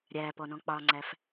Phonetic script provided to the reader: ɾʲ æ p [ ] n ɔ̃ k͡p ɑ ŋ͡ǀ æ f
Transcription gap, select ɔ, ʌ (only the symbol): ɔ